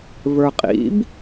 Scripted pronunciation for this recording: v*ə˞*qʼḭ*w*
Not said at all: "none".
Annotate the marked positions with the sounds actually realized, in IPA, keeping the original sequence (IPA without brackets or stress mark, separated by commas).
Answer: ə˞, b